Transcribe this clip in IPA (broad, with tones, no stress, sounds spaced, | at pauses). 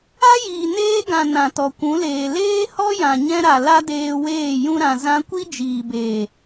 a˦ j iː˨ n eː˦ ɡ ã˨ n ã˨ t ɔ˨ kʷ ũ˨˦ l eː˨ l eː˦ h ɔ˦ j ã˨ ɲ ɛ̃˦ ɾ a˨ l a˦ d eː˧ w eː˦˨ j ũ˧ ɾ ã˨ z ã˧ kʷ i˦ d͡ʒ iː˨ b eː˨